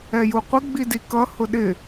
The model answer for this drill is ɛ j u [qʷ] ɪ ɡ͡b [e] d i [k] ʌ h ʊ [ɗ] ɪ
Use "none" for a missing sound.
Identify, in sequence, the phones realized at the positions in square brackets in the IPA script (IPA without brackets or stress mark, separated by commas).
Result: qʷ, i, k, ɗ